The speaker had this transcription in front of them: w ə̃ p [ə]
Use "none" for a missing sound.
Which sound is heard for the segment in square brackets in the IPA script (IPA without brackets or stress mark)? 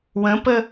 ə